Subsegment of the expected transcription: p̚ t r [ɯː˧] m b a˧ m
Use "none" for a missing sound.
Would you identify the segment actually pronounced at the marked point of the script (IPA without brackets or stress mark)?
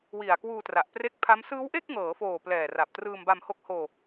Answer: ɯː˧